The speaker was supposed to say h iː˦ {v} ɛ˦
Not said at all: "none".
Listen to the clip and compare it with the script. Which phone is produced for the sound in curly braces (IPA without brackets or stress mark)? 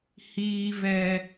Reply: v